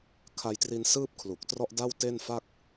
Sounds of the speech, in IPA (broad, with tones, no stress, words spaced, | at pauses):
kʰa˧jtri˧n sɯː˥˩p̚kʰlu˨˩k̚trɔ˥˩ʔda˥˩w te˥˩nfa˥˩k̚